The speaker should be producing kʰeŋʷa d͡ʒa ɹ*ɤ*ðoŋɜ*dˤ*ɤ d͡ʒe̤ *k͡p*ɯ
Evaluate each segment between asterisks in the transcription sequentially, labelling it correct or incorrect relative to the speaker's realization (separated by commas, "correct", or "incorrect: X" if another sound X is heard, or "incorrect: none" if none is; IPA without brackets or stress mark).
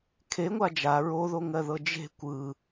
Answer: incorrect: o, incorrect: ð, incorrect: kʷ